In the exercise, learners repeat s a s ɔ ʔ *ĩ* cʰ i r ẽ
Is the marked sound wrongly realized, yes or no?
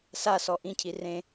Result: no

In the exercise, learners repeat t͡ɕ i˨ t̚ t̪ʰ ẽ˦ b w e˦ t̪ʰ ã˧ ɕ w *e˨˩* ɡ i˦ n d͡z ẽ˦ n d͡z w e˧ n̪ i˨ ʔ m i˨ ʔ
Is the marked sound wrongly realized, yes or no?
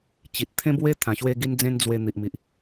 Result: yes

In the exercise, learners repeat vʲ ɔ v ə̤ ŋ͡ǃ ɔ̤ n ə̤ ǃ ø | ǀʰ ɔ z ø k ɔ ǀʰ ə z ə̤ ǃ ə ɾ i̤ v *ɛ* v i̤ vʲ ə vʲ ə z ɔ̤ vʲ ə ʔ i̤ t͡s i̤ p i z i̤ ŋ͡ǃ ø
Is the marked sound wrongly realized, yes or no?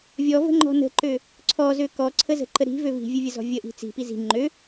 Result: yes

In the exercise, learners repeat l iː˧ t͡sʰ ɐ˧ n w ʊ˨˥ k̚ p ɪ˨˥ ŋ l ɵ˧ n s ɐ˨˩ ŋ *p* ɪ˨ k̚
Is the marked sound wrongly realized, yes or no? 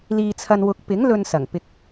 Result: no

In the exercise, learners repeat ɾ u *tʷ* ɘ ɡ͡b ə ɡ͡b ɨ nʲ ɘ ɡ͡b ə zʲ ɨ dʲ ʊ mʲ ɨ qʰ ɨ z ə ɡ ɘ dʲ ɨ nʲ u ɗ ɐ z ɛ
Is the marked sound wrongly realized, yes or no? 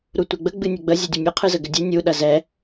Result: no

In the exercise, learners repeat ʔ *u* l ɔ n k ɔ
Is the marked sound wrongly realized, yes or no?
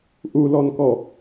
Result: no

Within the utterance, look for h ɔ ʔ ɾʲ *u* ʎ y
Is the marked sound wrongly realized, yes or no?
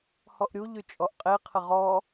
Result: no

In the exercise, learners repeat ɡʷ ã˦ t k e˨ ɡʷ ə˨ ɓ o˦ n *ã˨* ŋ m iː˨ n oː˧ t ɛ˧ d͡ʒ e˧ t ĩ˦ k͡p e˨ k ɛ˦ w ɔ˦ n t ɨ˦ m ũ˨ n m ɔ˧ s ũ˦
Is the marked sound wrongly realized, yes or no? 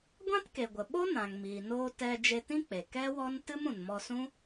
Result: no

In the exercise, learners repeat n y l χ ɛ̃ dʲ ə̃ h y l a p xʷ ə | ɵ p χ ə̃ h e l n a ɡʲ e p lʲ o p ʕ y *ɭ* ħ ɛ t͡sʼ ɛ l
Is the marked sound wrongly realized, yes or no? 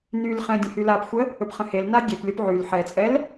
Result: yes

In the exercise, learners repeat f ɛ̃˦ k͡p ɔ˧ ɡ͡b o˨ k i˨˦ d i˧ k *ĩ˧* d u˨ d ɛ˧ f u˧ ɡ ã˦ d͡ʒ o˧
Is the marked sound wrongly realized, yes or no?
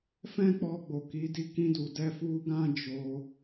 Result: no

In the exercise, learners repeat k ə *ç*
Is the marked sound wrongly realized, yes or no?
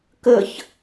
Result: no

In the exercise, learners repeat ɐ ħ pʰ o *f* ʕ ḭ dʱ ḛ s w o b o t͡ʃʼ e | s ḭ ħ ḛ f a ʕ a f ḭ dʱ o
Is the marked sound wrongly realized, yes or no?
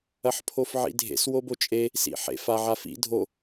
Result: no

